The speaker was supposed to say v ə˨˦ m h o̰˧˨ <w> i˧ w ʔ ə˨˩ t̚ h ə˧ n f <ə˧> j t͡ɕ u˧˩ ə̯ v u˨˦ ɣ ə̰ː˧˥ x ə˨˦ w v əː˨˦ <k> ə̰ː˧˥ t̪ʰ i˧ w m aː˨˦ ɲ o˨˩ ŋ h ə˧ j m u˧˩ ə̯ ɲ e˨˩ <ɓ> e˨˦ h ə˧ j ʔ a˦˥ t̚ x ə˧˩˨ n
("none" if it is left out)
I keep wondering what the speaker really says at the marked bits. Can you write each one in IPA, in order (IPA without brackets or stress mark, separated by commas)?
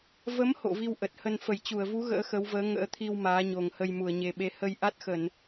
v, ə˧˩, ŋ, ɓ